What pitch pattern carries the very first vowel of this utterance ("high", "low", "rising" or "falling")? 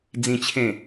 high